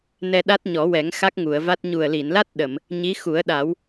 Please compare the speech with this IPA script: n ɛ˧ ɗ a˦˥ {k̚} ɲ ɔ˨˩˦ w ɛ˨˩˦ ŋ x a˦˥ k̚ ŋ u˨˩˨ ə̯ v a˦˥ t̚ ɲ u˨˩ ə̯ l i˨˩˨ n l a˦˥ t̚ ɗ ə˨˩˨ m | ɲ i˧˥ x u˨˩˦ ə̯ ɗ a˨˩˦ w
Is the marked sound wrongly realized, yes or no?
yes